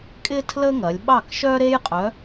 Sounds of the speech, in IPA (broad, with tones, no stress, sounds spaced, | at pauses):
kʼ ɪ˥ tʰ l ə˥ ŋ ɐ˩˧ lʲ ɓ ɑ˥˩ k ʃ œ˥ ɾ e˥ j qʼ œ˨˥